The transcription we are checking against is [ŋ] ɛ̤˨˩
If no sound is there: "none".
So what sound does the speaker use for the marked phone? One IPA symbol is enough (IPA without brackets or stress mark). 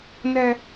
n